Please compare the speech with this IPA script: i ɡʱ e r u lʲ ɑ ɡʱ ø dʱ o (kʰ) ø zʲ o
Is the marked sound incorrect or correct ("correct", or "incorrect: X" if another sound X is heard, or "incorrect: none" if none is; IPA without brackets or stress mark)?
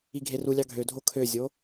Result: correct